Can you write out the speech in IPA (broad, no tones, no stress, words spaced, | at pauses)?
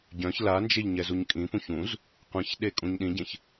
ɟœ̃ç land͡ʒeʎ ɲɛzuɲkʼĩpũç ũz | qʷĩçɗe kʼũɲɗĩɟẽç